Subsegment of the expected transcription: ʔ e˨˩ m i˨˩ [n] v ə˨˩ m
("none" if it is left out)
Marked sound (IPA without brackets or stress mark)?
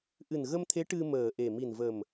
n